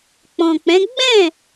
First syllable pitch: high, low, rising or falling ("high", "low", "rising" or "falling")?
low